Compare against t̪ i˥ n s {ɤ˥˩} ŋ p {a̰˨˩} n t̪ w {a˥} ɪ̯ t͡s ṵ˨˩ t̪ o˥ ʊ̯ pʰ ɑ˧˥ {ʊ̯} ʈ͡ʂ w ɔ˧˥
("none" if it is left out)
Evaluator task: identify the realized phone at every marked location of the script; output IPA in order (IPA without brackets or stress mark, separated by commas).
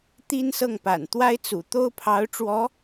ɤ˥˩, a̰˨˩, a˥, ʊ̯